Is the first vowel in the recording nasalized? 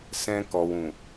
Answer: yes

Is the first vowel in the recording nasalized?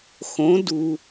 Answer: yes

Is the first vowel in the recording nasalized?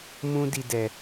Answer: yes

